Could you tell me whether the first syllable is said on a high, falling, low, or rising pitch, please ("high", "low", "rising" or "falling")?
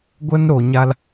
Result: high